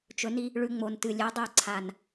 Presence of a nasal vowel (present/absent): absent